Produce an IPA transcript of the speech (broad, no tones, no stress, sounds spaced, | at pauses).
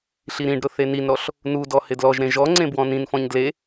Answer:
ɬ i ɾ ĩ ɖ ɾ ʊ θ e n i n ɾ ɔ ɬ | n u d ɔ h ɪ d l ɔ ʒ ɾ ẽ ʒ ɔ ŋ͡ǀ ẽ b w ɔ̃ n ĩ n f ɔ̃ ɲ d l e